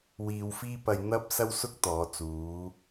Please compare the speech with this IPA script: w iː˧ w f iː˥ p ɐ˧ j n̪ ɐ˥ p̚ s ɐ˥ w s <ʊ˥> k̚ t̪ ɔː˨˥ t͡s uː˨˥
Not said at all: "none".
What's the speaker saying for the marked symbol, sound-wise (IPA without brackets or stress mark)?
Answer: ʊ˥